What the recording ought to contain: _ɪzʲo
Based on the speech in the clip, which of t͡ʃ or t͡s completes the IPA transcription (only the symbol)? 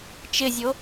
t͡ʃ